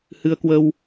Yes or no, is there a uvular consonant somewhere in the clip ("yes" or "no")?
no